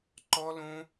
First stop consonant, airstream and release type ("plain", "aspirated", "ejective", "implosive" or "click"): click